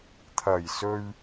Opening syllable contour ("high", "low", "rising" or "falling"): low